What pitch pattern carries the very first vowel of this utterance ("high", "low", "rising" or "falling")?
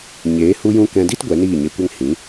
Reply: rising